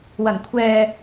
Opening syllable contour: low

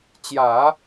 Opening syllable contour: low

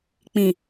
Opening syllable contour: low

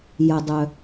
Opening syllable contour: low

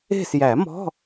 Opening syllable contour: falling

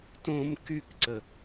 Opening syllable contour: high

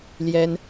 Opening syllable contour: high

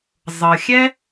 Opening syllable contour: low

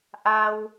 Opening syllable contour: low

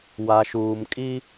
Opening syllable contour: low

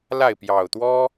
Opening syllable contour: falling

